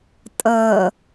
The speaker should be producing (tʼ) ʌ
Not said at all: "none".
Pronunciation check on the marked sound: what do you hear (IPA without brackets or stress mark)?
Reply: tʼ